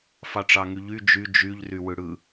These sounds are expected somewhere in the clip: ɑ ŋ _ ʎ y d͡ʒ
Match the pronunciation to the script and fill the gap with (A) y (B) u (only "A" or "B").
A